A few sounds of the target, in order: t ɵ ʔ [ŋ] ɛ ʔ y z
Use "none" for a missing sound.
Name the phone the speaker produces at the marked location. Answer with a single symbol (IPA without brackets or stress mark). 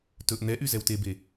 n̪